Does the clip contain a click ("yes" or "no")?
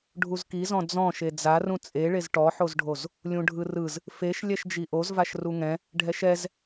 no